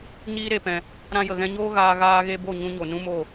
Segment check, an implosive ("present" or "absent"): absent